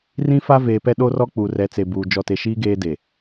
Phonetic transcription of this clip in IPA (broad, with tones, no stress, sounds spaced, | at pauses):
r ĩ˦ f a˦ v eː˨ p ɛ˦ ɗ o˦ r ɔ˦ k͡p u˨ r ɛ˨˦ t͡s e˨ b uː˨ d͡ʒ ɔ˨ t e˨ ʃ iː˦ ɡ eː˦ d e˨